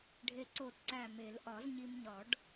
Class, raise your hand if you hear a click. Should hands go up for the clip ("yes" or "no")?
yes